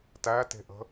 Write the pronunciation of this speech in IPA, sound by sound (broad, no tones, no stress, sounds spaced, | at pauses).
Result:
t æ t e̤ ʔ ə̤